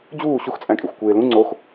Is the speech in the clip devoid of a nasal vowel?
no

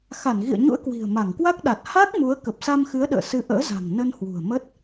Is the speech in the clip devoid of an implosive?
no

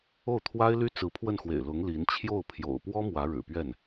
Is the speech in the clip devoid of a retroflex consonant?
no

